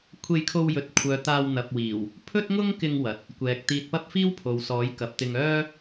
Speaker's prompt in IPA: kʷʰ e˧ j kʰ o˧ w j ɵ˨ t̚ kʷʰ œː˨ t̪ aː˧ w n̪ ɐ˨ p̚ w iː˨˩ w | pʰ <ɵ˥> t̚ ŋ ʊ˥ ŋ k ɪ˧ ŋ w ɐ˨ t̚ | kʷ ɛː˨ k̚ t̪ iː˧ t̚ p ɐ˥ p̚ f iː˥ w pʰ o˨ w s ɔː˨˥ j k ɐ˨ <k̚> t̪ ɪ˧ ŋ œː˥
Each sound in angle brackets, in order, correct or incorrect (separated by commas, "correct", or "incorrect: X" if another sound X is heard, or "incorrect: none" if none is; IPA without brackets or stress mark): correct, incorrect: p̚